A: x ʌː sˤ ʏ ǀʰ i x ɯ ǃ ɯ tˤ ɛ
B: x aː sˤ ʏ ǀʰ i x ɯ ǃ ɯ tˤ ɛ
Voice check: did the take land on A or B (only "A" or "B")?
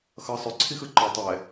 A